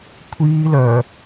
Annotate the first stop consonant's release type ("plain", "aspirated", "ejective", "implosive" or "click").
aspirated